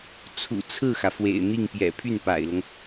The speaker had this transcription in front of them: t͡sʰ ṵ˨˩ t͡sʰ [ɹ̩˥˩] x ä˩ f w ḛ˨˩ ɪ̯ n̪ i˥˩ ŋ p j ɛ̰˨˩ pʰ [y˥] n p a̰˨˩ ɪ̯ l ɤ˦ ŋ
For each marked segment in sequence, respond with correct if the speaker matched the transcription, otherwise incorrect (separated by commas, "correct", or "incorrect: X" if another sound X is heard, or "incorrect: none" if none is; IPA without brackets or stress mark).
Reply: correct, incorrect: y˥˩